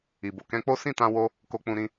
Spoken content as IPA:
i˨ b o˨ k ɛ̃˧ k͡p o˦ s ĩ˦˨ t ã˧ w o˦ | k o˧ k͡p ũ˧ ɾ ĩ˧

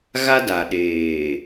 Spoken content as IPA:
ɣ a˦ d a˨ ɗ eː˨

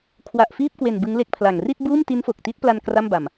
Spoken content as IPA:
kʰ w a˨˩ ʔ f iː˥˩ p̚ k w e˨˩ n b ɯ˦˥ ŋ l e˦˥ k̚ pʰ l a˨˩ ŋ r i˥˩ t̚ b uː˥˩ m t i˦˥ n f o˨˩ k̚ t i˦˥ t̚ p l a˧ n k r a˥˩ m b a˨˩ m

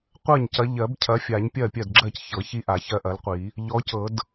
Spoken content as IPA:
qʷ ɜ˥˩ ɲ c ɐ˨˦ ʎ ɜ˨˩˦ b cʰ ɐ˨˦ fʲ a˨˩˦ ɲ pʲ ɜ˥˩ pʲ ɜ˥˩ d ɡ͡ǁ ɜ˥˩ c ç ɤ˨˩˦ ç i˦ ʔ a˨˩˦ ç ɜ˦ ʔ ɐ˨˦ l qʷ i˨˩˦ | ʎ ɔ˨˦ c ɤ˨˩˦ d

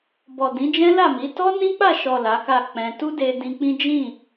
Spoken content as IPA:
b ɔ˨ d ĩ˨˦ d͡ʒ ɛ̃˦ l a˦˨ m i˨˦ t ɔ˦ n ĩ˦ k͡p a˦˨ ʃ ɔ˨ l a˨˦ k a˦˨ k͡p ɛ̃˧ t u˦ d e˧ d ĩ˧ k͡p ĩ˦ d͡ʒ ĩ˦˨

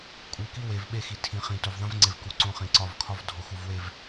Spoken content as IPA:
kʼ u˨ k i˦ w e˨ v ɓ e˦ x i˨ tʰ ĩ˨ χ ĩ˨ t o˨ v ðˤ ẽ˦ v ŋ͡ǀ e˨ v k u˨ ǀ õ˦ χ ĩ˨ ǀ ɒ˦˨ v kʰ ɒ˦ v dʱ o˨ x u˨ v w e˦˨ v

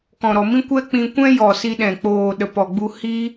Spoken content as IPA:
k ɔ̃˨ ɾ ɔ˨ m ĩ˦ kʷ ɛ˦ k͡p ĩ˧ kʷ ɛ̃˦ j ɔ˨ s i˧ ɗ ɛ̃˨ k͡p oː˨ ɗ ə˨ p ɔ˨ ɡ͡b u˧ h i˧

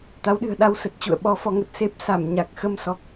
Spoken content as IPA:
t̪ a˨˦ w ɗ ɨ̤˨˩ ə̯ ɗ a˧ w s ə˨˩ t̚ t͡ɕ ṵ˧˨ ə̯ ɓ ɔ˨˦ f ɔ˨˦ ŋ ə˨˩ t̚ s e˦˥ p̚ s a˧˩ m ɲ a˨˩ k̚ x ə˧ m s ɔ˨˩ k̚

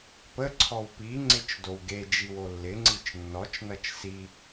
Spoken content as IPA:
p ə ǀʰ ɔ w p i ŋ͡ǀ ɪ t͡ʃ d o w ɡ e d͡ʒ i w o lː ɪ ŋ͡ǀ i t͡ʃ nː ɔ t͡ʃ n ʌ t͡ʃ s i

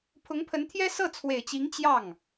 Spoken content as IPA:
pʰ ʊ˧˥ ŋ pʰ ə˧˥ n t̪ʰ j ɛ˥ s ɤ˥˩ t͡sʰ w e˨˩ ɪ̯ t͡ɕ i˧˥ ŋ t͡ɕ j ɑ˥˩ ŋ

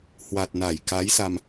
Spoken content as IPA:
h w a˨˩ t̚ n a˧˩ j k a˨˦ j s a˧ m

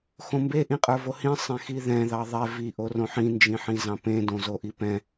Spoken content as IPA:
x õ m b e ʔ ĩ qʼ ə˞ v o h ĩ sˤ ẽ x i ð ɛ̃ ð ɑ ðˤ ɛ v i ʔ o r õ ħ ĩ n d͡ʒ ĩ ħ ĩ z ɑ̃ p ẽ d õ z o ʔ i p ɛ̃

